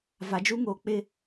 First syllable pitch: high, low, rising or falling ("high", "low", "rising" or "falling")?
low